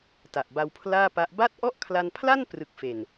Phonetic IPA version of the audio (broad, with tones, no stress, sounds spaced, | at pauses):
t a˨˩ ʔ b a˧ w pʰ l aː˥˩ p a˦˥ ʔ b a˥˩ t̚ ʔ ɔ˥˩ ʔ kʰ l a˧ n pʰ l a˥˩ n p r ɯ˨˩ k̚ f e˨˩ n